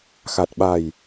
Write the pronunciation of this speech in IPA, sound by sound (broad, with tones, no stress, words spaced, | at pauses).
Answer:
xa˨˩t̚ɓa˨˩j